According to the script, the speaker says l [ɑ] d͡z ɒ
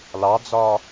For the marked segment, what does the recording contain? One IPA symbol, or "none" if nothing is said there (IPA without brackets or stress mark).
ɑ